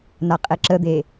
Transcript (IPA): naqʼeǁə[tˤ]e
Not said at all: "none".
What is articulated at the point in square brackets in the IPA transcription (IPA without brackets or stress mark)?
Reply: d̪